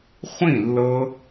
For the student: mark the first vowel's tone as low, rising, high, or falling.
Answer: falling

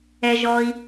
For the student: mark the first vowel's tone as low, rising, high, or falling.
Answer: low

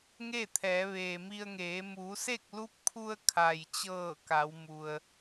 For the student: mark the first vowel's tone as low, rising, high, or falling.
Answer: falling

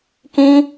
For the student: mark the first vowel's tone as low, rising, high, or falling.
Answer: high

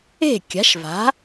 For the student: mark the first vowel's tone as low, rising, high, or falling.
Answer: falling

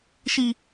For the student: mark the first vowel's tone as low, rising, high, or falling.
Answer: high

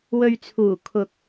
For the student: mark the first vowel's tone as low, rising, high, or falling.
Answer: low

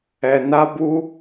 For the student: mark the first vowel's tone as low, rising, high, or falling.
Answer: low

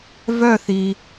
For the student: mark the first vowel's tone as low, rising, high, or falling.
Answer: falling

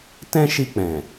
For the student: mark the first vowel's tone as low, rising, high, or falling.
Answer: high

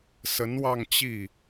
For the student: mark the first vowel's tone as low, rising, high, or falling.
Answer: rising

